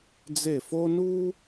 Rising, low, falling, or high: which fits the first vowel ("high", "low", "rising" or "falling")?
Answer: falling